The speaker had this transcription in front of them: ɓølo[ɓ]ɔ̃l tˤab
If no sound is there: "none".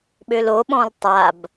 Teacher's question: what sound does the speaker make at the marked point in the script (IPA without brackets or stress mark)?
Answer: ɓ